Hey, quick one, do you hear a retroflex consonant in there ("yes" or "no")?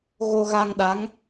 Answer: no